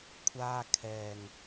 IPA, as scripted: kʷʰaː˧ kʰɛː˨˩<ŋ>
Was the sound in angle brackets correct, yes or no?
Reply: yes